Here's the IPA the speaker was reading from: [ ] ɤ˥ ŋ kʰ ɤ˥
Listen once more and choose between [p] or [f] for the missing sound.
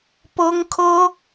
p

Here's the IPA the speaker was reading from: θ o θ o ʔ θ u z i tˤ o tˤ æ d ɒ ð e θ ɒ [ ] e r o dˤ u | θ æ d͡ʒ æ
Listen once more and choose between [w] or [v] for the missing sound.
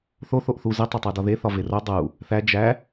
v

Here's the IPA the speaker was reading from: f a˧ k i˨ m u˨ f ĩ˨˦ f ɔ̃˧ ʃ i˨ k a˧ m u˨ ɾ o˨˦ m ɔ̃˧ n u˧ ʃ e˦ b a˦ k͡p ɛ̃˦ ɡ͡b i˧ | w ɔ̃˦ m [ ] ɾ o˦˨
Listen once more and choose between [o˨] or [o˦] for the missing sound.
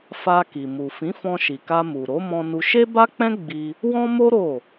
o˦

